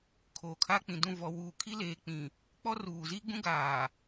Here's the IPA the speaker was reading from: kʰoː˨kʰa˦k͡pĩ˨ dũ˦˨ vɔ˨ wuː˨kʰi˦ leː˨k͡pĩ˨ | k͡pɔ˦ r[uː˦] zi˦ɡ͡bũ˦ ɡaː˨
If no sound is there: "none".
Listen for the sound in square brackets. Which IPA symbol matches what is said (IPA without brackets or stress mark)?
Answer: uː˨